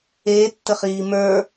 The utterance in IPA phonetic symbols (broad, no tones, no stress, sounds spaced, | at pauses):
eː tː ə χ iː m ə˞